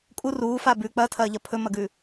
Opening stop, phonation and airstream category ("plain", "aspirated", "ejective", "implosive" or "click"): ejective